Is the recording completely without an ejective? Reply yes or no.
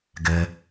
yes